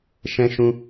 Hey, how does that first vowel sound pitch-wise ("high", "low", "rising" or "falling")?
high